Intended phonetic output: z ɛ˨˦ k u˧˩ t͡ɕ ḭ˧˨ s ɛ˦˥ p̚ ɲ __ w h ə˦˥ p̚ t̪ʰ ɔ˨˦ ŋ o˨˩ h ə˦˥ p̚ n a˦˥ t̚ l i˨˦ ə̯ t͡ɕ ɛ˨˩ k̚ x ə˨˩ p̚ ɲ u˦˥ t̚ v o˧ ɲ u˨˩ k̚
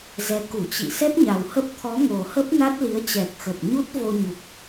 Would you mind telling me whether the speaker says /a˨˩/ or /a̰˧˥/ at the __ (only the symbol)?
a˨˩